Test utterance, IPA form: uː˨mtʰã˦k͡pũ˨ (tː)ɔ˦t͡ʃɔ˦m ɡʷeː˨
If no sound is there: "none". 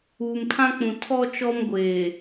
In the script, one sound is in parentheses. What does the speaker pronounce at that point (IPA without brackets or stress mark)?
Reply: tʰ